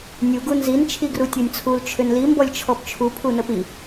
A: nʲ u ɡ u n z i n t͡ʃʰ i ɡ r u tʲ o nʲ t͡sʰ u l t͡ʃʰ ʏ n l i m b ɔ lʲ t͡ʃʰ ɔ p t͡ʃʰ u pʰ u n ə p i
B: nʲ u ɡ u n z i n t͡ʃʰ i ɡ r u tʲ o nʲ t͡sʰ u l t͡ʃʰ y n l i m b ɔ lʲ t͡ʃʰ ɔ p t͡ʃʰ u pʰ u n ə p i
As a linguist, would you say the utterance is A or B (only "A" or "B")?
A